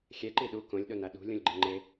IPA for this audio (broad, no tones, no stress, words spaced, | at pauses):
xʲɛǃi ɗu kõlʲɗona ɗṳlʲũlʲɡ͡ǃeŋ͡ǃe